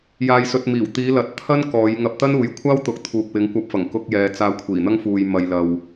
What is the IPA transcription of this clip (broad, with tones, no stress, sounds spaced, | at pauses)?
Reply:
j aː˧ j s ɵ˧ t̚ m iː˨˩ w t̪ iː˨˧ l ɐ˨˥ t̚ t̪ʰ ɐ˥ n k ɔː˨˧ j ŋ ɐ˧ p̚ t̪ ɐ˥ n uː˨ j kʷʰ aː˥ w t̪ ʊ˨˥ k̚ t̪ʰ uː˨ k̚ w ɪ˨˧ ŋ kʷ ɐ˧ p̚ f ɐ˨˩ ŋ k ʊ˧ k̚ j ɛː˨ t͡s aː˧ kʷʰ iː˨˩ n̪ ɐ˥ ŋ f uː˧ j m ɐ˧ j l ɐ˧ w